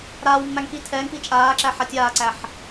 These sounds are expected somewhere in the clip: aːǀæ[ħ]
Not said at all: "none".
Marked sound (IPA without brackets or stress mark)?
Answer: ħ